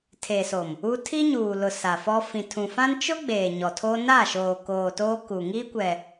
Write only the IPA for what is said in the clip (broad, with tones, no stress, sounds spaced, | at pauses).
tʰ e˨ s o˨ m | u˦ tʰ i˦ ɲ uː˨ l ʊ˨ s a˨ f ɔ˦ f ĩ˨ tʰ ũ˨ f ã˦ n t͡ʃ ʊ˦ ɡ͡b eː˨ ɲ ɔ˨ tʰ o˦ n a˦˨ ʃ oː˨ k oː˨ t oː˦ k u˨ ŋ iː˦ kʷ ɛ˨